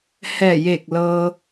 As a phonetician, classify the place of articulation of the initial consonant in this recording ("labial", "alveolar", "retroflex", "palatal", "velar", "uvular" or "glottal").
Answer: glottal